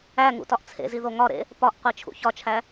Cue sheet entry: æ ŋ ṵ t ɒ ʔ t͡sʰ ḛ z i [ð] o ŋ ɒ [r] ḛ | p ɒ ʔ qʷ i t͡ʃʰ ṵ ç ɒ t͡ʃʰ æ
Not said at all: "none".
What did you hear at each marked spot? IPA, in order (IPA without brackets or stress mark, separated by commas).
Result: ð, ɾ